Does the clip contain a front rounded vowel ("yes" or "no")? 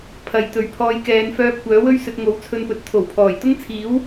yes